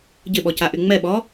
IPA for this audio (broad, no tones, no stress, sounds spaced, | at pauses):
ɟ ɪ ɓ ɔ c a ʔ y ŋ͡m ɛ ɓ ɔ